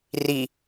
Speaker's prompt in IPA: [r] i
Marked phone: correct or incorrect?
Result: correct